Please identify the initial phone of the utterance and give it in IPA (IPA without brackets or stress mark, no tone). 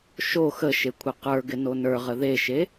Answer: ʃ